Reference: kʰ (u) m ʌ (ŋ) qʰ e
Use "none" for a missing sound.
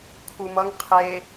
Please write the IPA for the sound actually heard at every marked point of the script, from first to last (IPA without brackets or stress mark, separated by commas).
u, ŋ